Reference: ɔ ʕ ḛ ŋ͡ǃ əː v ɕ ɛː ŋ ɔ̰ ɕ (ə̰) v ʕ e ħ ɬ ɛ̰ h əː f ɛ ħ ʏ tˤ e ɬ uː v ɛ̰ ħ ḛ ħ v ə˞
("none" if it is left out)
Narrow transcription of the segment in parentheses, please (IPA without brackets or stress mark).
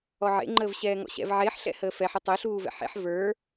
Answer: ɛ̰